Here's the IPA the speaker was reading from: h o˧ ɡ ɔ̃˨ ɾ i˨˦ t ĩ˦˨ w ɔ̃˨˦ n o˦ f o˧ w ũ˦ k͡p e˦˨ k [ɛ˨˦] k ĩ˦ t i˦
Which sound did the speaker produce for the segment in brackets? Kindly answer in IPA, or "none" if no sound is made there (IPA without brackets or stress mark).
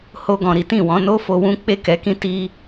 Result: ɛ˨˦